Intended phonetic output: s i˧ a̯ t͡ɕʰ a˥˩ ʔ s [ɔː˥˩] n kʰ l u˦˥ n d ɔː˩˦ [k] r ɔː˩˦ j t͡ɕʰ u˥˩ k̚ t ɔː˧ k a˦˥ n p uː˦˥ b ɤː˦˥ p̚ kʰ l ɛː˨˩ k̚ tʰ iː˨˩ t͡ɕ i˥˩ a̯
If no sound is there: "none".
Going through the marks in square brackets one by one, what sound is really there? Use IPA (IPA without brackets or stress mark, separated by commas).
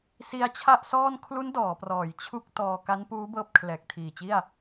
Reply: ɔː˥˩, p